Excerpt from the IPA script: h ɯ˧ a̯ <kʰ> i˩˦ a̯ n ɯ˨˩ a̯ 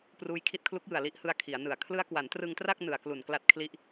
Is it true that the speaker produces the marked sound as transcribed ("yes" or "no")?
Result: yes